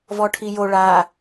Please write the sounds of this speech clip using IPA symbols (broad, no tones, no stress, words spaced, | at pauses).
vɔʈʰijo ɭa